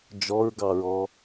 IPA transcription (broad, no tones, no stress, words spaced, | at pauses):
d͡ʒɔɹɡɑɹɔ